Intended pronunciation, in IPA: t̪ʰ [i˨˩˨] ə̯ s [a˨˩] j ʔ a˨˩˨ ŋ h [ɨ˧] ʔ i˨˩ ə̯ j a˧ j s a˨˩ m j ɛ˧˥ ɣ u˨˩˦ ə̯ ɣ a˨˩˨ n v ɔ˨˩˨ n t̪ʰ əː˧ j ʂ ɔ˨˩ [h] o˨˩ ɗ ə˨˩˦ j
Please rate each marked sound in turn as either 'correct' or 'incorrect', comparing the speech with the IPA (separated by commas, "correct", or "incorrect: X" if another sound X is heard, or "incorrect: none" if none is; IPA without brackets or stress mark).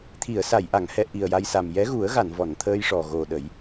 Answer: correct, incorrect: a˨˩˨, incorrect: ɛ˧, incorrect: ɣ